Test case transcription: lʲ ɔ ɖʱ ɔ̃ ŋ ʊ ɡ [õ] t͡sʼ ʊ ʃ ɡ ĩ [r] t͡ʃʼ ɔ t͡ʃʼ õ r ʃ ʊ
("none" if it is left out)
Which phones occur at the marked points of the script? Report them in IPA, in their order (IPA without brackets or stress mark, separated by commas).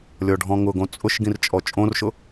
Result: õ, r